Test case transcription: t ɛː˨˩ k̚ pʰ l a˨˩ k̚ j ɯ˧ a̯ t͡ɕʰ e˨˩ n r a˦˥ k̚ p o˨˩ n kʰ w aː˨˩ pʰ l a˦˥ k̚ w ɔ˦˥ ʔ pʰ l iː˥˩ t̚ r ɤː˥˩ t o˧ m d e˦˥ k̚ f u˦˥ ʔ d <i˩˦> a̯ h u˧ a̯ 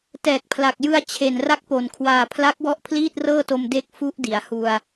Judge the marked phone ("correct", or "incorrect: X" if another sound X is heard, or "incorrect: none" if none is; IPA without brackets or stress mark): correct